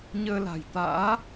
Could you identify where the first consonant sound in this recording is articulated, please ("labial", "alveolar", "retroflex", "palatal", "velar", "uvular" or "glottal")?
palatal